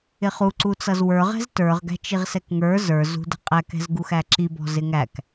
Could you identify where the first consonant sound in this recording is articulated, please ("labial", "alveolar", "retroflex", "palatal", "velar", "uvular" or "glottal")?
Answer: uvular